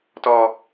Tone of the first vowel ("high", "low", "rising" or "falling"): high